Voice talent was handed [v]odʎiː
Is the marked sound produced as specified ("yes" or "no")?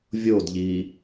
no